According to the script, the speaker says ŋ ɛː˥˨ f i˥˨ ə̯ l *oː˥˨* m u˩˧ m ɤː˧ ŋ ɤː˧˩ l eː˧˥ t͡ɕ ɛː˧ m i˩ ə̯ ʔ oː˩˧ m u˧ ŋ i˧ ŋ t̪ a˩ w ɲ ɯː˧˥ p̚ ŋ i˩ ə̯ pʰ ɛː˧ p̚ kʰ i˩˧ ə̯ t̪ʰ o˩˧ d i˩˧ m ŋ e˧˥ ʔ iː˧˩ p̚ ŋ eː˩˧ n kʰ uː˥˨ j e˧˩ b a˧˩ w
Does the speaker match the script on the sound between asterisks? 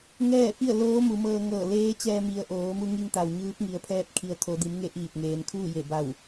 no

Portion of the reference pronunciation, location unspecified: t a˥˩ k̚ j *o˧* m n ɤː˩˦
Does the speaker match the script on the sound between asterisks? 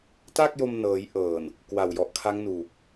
yes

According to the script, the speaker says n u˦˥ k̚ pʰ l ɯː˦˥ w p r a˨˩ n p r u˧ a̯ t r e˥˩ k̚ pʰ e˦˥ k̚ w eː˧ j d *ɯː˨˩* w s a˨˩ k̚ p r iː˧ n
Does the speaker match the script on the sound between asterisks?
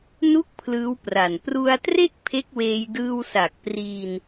no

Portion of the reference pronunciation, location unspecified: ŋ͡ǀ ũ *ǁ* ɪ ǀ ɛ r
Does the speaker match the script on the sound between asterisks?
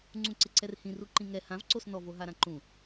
no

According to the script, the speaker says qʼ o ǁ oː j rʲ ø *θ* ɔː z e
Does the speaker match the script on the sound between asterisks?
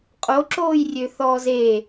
yes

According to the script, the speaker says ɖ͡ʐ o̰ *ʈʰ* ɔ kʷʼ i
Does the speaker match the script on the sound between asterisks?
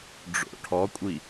yes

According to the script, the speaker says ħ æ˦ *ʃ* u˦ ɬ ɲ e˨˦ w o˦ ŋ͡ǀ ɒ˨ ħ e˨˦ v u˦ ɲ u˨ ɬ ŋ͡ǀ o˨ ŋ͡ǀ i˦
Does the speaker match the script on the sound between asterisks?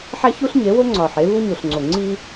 no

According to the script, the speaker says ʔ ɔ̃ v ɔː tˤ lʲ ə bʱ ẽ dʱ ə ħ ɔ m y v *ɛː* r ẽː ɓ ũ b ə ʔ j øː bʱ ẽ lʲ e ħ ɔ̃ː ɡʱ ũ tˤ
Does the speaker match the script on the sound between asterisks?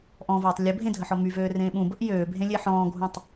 no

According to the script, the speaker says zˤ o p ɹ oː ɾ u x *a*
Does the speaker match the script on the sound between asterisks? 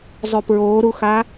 yes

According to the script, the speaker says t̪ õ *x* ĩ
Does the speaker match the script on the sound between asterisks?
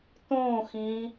yes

